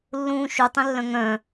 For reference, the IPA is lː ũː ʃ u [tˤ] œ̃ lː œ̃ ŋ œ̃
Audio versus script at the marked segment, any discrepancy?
no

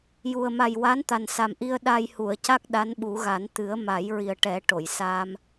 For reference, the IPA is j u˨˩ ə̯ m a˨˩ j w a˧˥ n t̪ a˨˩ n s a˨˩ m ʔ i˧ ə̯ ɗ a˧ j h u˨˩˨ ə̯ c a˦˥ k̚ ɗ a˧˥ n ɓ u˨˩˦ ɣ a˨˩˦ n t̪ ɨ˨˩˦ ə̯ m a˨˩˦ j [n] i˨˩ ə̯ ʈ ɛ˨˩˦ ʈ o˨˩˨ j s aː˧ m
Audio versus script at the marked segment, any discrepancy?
yes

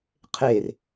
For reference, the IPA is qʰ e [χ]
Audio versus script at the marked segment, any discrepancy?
yes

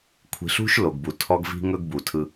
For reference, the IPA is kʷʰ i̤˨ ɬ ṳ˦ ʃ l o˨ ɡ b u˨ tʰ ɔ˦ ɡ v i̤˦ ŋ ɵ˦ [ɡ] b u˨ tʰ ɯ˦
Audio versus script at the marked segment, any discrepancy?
no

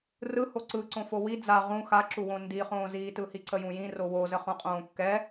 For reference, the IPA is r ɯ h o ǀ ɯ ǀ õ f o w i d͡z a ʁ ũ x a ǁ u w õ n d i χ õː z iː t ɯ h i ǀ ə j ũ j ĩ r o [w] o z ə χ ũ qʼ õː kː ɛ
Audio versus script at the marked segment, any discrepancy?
no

